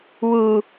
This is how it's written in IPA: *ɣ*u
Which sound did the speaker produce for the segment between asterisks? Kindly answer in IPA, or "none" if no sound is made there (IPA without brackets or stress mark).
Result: w